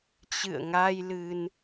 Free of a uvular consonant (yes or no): yes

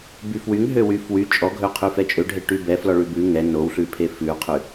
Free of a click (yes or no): yes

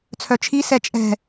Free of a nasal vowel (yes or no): yes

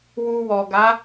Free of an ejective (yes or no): yes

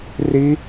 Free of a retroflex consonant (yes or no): yes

